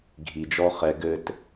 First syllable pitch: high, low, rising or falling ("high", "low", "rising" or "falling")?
low